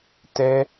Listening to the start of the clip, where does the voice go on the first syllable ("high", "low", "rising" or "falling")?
high